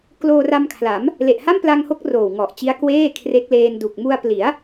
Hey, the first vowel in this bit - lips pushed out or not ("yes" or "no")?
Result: yes